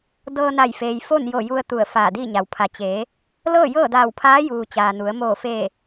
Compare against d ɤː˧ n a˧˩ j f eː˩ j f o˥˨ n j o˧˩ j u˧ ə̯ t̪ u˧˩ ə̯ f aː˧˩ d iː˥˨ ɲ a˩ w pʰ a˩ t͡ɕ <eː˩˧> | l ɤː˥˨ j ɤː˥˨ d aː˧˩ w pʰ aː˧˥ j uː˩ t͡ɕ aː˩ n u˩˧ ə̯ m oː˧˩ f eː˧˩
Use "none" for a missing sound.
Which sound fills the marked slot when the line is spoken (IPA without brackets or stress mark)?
eː˩˧